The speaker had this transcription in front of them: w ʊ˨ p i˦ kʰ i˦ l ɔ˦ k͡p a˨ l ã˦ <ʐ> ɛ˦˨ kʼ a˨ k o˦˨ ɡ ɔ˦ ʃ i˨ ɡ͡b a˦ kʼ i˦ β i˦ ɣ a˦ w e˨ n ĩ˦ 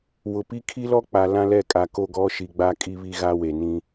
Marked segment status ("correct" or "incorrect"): incorrect